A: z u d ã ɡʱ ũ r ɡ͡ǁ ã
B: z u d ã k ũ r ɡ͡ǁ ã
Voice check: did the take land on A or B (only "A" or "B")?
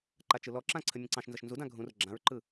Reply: A